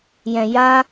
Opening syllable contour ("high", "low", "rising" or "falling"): low